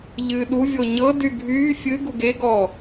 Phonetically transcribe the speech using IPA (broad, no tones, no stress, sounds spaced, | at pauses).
ʎ ɨː ɗ u vʲ o ɲ ɤ d y ɡʱ yː fʲ ɨ ɡ u ɡ e ɡ ɔː